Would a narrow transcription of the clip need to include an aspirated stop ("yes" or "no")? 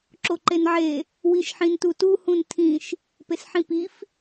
yes